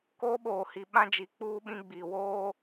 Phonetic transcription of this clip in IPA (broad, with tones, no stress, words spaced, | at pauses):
koː˦ ɓoː˨hi˨ ɓã˦d͡ʒi˨ k͡puː˦ɓĩ˦ɡ͡biː˨ woː˦